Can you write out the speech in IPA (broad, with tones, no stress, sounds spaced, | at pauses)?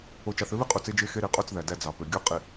o˨ t͡ʃ ɑ˨ θ ø˦ β i˦ qʼ u˨ t͡s e˦ d͡ʒ e˦ x e˦ ɾ i˨ qʼ o˦ t͡s ð æ˨ d æ˦ d͡z ɑ˨ p ø˨ ɡʲ o˦ qʼ i˨